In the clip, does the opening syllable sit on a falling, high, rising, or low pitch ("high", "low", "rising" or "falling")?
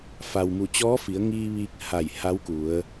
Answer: low